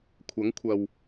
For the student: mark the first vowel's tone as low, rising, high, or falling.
rising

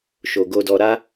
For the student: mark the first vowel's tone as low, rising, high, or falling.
low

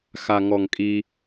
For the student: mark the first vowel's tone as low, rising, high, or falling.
low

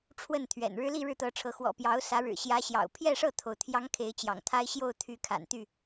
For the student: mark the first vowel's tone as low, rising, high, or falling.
falling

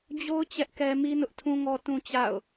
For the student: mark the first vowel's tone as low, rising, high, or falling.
high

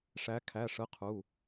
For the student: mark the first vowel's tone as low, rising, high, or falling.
rising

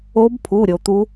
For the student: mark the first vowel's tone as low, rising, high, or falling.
rising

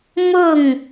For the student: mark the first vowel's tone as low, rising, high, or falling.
falling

